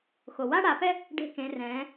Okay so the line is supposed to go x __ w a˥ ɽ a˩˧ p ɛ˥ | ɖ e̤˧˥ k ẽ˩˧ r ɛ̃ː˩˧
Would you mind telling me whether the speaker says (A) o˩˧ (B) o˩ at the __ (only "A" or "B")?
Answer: B